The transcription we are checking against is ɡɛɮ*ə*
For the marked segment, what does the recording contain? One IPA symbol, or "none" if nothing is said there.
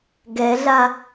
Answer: a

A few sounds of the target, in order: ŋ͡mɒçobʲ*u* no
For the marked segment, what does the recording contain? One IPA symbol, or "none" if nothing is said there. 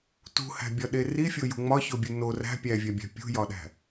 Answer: u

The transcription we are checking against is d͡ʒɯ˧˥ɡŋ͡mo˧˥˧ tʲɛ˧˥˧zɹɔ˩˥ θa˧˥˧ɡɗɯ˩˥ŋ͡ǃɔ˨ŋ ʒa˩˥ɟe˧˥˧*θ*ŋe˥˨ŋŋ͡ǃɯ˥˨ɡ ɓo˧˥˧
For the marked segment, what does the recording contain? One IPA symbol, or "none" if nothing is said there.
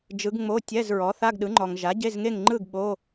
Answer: z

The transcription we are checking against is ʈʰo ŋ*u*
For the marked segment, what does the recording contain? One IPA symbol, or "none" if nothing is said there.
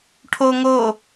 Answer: o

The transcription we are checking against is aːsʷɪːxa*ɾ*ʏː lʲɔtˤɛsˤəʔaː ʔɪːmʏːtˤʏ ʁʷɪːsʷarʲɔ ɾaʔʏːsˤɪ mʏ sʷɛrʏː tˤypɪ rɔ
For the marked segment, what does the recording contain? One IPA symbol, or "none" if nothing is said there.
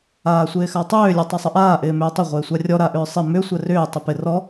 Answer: tˤ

